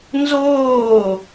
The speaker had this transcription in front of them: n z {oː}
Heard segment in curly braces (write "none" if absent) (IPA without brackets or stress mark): oː